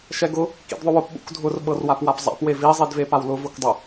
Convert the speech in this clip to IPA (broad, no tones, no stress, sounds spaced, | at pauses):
ʃ ɛ ɡ ʊ | k ḭ d ðˤ ʊ w ʊ p ɓ ṵ k dʱ ʊ r ɓ ɤ r w a p w a p zˤ a̰ p w e v i zˤ i d v e p a w l ʊ v ʊ k dˤ ʊ